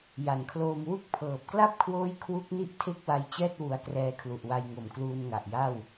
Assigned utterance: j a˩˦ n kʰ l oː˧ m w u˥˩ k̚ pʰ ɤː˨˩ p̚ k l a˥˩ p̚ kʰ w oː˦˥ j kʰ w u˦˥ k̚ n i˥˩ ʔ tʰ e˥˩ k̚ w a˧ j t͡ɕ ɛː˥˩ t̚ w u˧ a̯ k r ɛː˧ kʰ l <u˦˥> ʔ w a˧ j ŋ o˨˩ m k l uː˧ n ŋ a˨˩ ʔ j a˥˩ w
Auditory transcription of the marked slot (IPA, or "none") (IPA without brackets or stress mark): u˨˩